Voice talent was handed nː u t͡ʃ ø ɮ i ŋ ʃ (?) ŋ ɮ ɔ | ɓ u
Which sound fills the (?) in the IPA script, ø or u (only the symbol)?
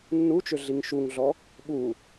u